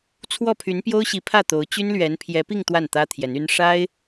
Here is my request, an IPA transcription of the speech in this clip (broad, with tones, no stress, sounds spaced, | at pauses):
t͡sʰ w ɔ˥˩ pʰ y˧˥ n p j o˥ ʊ̯ ɕ i˧˥ pʰ ä˥˩ t̪ o˧˥ ʊ̯ t͡ɕ y˥ n l ɥ ɛ˧˥ n pʰ j ɛ˧˥ p i˥˧ ŋ t̪ w a˥˩ n t̪ ä˥ t̪ʰ j ɛ˧˥ n y˥ n ʂ a˥ ɪ̯